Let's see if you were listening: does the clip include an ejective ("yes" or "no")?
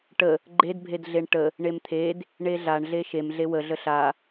no